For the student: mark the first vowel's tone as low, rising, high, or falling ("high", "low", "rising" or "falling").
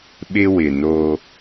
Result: high